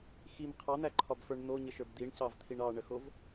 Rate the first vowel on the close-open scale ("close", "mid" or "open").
close